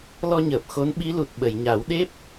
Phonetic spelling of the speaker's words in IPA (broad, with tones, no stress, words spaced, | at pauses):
lɔ˧ɲəː˨˩p̚ xo˧˥nɓi˧˥lu˨˩t̚ ɓə˨˩˨jɲa˨˩˦w ɗe˦˥p̚